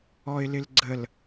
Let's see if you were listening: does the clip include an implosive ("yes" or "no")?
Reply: no